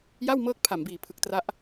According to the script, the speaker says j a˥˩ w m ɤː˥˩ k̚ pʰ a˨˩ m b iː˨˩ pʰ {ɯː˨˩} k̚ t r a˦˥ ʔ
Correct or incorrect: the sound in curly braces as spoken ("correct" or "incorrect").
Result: incorrect